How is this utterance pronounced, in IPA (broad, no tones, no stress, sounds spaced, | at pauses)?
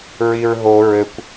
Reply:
ɹ i ɹ ɦ o ɹ ɘ kʷ